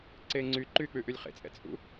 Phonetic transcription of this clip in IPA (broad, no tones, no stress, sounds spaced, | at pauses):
ǀ eː ŋ͡ǀ yː ǃ yː k͡p ʉ ʔ ʉ lʲ χ ḛ t͡sʼ ɛ̰ t͡sʼ ṵ